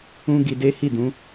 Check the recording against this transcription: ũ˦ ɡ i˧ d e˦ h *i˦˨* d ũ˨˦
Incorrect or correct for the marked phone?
correct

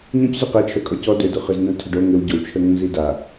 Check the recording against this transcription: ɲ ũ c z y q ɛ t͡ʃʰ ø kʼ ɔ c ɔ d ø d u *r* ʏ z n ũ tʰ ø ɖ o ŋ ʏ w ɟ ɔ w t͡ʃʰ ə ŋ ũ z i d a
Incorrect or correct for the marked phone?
incorrect: χ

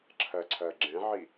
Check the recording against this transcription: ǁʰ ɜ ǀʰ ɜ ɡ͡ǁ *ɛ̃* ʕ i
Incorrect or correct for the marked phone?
correct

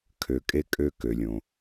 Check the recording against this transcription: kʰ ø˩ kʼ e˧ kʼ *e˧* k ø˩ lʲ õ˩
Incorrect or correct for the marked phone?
incorrect: ø˧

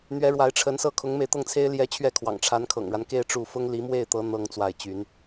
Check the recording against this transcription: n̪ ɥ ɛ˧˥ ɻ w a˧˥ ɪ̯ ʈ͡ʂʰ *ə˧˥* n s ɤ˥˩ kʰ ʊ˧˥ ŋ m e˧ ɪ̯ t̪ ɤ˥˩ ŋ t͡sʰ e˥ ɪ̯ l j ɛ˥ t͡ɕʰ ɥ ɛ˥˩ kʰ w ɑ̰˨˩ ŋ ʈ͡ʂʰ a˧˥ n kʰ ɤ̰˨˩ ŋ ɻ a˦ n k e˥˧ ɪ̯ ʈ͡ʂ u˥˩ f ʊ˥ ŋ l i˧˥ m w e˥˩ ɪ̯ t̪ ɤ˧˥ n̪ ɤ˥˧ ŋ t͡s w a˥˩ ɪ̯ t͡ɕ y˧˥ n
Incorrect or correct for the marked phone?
correct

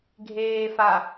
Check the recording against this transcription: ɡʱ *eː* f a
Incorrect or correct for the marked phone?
correct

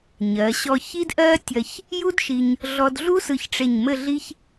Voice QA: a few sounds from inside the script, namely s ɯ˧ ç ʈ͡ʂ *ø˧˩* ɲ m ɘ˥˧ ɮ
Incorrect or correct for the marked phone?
incorrect: e˧˩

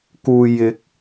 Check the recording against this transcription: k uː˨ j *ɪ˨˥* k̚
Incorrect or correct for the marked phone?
correct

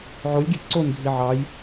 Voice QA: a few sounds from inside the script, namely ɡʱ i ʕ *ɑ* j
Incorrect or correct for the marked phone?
correct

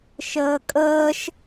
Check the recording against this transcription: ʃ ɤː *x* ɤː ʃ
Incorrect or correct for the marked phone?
incorrect: kʼ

